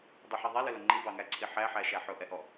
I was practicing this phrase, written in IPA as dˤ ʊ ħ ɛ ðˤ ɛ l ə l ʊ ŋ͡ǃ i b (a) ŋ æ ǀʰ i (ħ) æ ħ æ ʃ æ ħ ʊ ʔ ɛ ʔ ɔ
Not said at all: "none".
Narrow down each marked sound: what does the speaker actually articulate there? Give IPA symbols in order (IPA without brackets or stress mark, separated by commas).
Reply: ɑ, ħ